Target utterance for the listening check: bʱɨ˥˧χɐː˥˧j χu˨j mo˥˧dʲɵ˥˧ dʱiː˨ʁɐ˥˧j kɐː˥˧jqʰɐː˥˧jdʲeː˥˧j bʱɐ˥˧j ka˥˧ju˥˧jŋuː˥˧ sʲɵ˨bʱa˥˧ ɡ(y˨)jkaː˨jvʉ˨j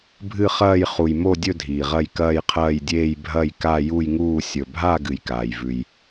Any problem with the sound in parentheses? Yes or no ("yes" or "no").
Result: yes